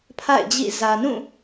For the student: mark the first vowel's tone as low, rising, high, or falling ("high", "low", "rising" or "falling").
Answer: falling